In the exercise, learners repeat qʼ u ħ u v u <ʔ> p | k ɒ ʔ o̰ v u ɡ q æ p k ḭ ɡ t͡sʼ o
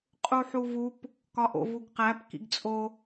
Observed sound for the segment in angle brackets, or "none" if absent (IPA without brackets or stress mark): none